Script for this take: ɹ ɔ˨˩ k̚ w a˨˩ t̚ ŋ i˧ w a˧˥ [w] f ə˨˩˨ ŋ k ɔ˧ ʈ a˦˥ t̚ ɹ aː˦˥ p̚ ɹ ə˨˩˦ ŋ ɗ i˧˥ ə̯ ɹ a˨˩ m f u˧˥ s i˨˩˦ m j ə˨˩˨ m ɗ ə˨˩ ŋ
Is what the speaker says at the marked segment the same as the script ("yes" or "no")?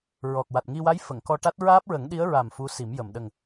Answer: no